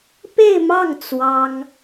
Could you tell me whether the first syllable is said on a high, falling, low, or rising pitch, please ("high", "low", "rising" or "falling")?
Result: falling